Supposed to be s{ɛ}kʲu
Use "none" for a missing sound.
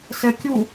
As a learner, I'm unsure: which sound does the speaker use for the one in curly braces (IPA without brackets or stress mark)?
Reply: ɛ